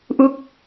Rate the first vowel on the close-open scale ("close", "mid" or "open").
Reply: close